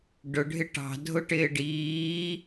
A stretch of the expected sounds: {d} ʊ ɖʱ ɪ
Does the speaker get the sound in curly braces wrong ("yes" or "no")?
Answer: yes